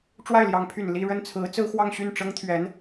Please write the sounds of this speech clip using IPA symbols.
ʈ͡ʂ w a˥˩ ɪ̯ l j ɑ˧˥ ŋ pʰ y˨˩ n l i˥˧ ɻ ə˥˩ n t͡sʰ ɹ̩˧˥ t͡s ɹ̩˥ x w ɑ˥˧ ŋ ɕ y˥˩ n ʈ͡ʂ ɤ˥ ŋ t̪ʰ ɥ ɛ˧˥ n

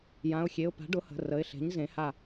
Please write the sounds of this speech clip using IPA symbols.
j ã˩˧˩ ʊ̯ xʲ e˩˧˩ ʊ̯ p a̤˩˥ ɖ ʊ˩˥ h ə̤˩˧˩ r ə˩˧˩ ɪ̯ ɬ e̤˩˥ ɲ z ẽ˩˥ h a˧˩

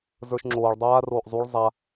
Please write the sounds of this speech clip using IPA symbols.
z ə˞ ʃ ŋ͡ǁ oː ɭ dˤ aː r oː ʔ zˤ u ɭ zˤ a

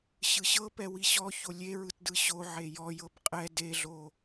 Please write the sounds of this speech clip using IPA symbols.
ɕ ɯ ɕ ɤ p ɛ w i ɕ ɔ ç o lʲ e ɹ ɯ t d ɯ ɕ o ʕ e j ɔ j ɤ b qʼ ɛ d e ɮ o

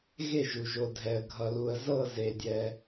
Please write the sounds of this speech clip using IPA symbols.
ɣ e˥˩ ʒ u˩ ʒ o˩ dʱ ɛ˩ ə̯ ɡʱ ʌ˩ l u˩ ə̯ z ɤ˥˩ z e˩ dʲ ɛ˩

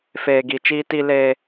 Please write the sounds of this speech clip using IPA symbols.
f eː˨ ɡ i˨ t͡ʃ iː˦ t i˦ l eː˦

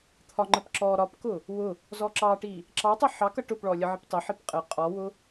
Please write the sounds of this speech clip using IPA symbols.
t̪ʰ ɒ ŋ͡ǃ ə p ǁ ɔ ɾ ɒ p k ʊ | w ʊ | z ɔ ǁ ɑ ʈ i | ǁ ɑ tˤ ʌ ħ ɑ k ʌ ʈ ʊ p ɭ ɔ lʲ ə ʕ ɪ p tˤ ə ħ i p qʼ ə qʼ ɔ w ʊ

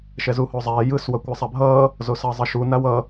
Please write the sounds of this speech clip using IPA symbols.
ʃ ɛ z u h o zˤ ɛː j ɯ s w ʌ kʷ a sˤ a bʱ ʌː | z o s ʌː zˤ ʌ ʃ u n a w ʌ

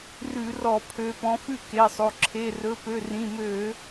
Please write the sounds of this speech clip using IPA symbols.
r ʉ˧˩˧ r ɔ˧˩˧ pʰ ø˨˦ p ɔ̃˨˦ f ʉ˥˨ k e˩˧˩ sˤ o˩˧˩ ǁʰ e˩˧˩ r ɵ˩˧˩ p ø˩˧˩ r ĩ˩˧˩ m ø˧˩˧

